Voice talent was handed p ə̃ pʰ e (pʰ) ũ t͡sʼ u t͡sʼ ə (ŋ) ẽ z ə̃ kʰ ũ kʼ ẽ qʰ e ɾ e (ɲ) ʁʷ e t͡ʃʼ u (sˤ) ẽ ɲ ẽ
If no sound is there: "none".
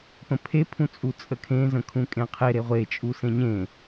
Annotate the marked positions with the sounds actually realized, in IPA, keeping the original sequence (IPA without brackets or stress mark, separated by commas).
pʰ, kʰ, none, s